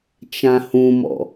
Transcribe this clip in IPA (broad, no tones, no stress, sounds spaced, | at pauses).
t͡ʃ ã h ũ m ɔ̰